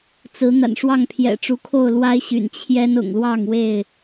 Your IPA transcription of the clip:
t͡sɹ̩˨˦ n̪a̰˨˩nʂwɑ˥˨ŋ pʰjɛ̰˨˩ʈ͡ʂu˨˦kʰo˥˨ʊ̯ lwa˦ɪ̯ɕy̰˨˩n t͡ɕʰjɛ˦n ʊ̰˨˩ŋlwɑ˥˨ŋwe˥˨ɪ̯

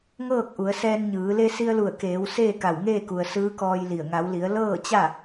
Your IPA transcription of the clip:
ŋɤː˥˨k̚ʔu˩˧ə̯sɛː˧n ɲɯː˩˧ le˧si˧ə̯lu˧˩ə̯keː˩˧w seː˥˨ka˧˩wŋeː˥˨ku˩ə̯ sɯː˧˥kɔː˧jli˧˩ə̯ ŋa˩˧wli˩˧ə̯ lɤː˥˨t͡ɕa˥˨

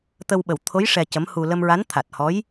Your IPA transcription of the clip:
t̪ə˧w ɓə˨˩wt̪ʰo˧˥j ʂɛ˧cə˧˥mhu˧ lə˧mɹa˧˥n t̪ʰa˨˩t̚hɔ˧˥j

